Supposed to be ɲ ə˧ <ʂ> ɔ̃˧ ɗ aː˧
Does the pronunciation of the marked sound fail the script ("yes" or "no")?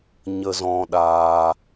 yes